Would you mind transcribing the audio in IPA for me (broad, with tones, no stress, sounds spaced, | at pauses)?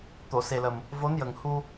t̪ o˨˩˨ s e˨˩ l ə˨˩ m | v o˧˥ n j ə˨˩ ŋ h u˧